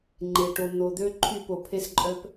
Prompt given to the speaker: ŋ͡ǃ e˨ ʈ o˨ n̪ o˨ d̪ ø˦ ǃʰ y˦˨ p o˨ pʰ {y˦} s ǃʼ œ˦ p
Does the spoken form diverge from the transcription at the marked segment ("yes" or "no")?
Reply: yes